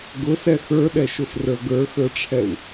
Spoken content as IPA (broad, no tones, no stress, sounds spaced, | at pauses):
ɡ ʊ s ɛ x ə˞ ɗ ɛ ʃ ʊ f r ə˞ ɡ ə˞ x ə˞ ʈ͡ʂʰ ɛ w